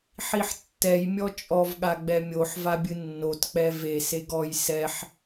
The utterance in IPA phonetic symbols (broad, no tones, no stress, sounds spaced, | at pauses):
ħ i ħ tː ɛ j mʲ ɔ t͡ʃʼ ɔ v ɠ a ɡ͡b ɛ mʲ o ħ v a bʲ ɨ nː o t k͡p ɛ v e s e ɡ ɔ j s ɛ ħ